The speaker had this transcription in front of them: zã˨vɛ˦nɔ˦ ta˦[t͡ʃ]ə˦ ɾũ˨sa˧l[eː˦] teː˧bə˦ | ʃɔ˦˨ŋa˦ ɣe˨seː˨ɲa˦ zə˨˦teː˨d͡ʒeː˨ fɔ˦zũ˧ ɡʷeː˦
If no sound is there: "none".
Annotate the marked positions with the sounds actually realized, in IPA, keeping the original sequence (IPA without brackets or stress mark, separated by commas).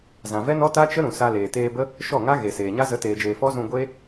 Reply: t͡ʃ, eː˨